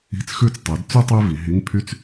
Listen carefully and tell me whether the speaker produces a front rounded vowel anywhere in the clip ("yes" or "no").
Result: yes